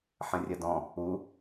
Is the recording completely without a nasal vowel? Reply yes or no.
no